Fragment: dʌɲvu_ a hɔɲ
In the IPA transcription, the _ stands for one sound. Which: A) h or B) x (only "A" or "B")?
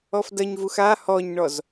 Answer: B